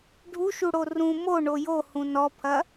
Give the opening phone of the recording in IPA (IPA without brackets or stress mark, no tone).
ɖʱ